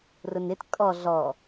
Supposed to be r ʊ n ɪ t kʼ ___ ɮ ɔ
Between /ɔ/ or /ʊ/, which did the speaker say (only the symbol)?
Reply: ɔ